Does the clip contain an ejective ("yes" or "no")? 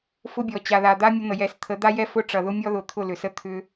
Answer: no